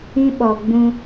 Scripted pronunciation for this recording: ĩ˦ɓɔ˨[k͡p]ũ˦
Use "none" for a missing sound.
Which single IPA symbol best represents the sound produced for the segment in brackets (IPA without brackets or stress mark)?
ɡ͡b